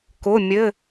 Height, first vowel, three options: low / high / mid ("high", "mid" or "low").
high